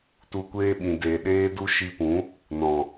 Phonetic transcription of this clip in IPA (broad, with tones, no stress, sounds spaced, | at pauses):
t u˧ kʷ eː˦ ɓ ĩ˨ d e˨ ɗ eː˦ d u˦ ʃ i˧ p ũ˨˦ | n ɔ̃˨